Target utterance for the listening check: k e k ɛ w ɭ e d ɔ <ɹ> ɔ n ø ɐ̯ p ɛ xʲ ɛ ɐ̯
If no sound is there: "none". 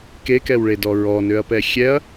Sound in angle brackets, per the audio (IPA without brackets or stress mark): ɹ